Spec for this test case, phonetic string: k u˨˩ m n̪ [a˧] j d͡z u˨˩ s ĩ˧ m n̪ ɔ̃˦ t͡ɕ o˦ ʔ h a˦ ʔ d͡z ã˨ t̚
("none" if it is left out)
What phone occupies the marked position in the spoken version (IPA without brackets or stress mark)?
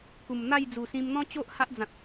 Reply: a˥˧